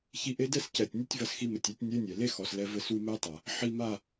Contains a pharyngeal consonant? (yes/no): yes